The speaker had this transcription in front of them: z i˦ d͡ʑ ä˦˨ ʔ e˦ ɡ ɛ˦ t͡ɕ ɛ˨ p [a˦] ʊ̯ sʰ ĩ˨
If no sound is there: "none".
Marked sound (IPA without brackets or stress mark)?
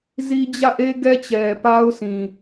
a˦